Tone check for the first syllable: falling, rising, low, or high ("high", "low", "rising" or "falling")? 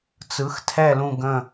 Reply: rising